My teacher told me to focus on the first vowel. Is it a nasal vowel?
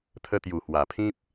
no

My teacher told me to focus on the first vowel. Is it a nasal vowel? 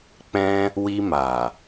yes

